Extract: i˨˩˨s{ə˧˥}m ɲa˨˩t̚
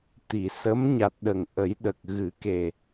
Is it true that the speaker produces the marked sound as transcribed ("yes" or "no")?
yes